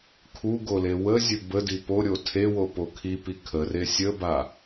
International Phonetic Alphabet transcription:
kʰuɡole wəzʲɵ bədi poɾʲo tʰewopo kʰipi kʰəre sʲəba

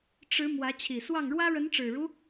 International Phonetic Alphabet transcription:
ʈ͡ʂɻ̩˧˥ mwä˧˥ t͡ɕʰi˨˩swɑ˥˩ŋ ɻwä˥ɻə˧˥nʈ͡ʂɻ̩˨˩ɻu˦

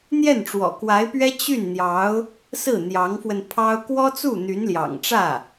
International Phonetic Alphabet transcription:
n̪jɛ˥˩nʈ͡ʂwɔ̰˨˩kwa˧˥ɪ̯pɥɛ˥ t͡ɕy˥˩nn̪jɑ˧˥ʊ̯ | sɹ̩˥˩n̪jɑ˧˥ŋfwə˧npʰɑ˥ʊ̯ kwɔ˥t͡su˥˩ n̪y˧˥nljɑ̰˨˩ŋʈ͡ʂä˥˩

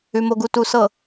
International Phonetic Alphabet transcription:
ʉ˨mo˨ɡu˨ tu˨sɤ˨

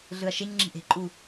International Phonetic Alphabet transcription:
ɮɯɐ̯ʃeɲŋ͡ǁi̤ ʔe̤ǃʼu

